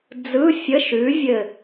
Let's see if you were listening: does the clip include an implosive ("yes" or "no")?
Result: no